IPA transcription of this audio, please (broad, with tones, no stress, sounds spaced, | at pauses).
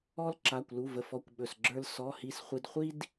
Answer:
ɔ˥ l ǁ a˧˥˧ kʷ l u˧˥˧ v ə˧˥˧ f ɔ˧˥˧ kʷ ɓ ɵ˧˥˧ s ɡ͡ǁ ə˞˥ l s ɔ˧˥˧ h i˥ s χʷ i˥ d χʷ i˥ d